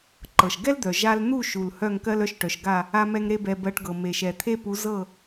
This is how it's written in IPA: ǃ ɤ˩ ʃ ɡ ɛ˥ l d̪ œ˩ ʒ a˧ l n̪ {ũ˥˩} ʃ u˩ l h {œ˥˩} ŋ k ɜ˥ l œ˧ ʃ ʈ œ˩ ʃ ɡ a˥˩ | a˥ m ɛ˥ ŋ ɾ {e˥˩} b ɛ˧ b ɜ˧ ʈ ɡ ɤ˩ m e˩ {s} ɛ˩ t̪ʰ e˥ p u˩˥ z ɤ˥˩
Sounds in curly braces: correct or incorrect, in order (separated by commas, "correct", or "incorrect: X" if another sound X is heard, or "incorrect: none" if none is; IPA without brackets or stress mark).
incorrect: u˥˩, correct, incorrect: e˥, incorrect: ʃ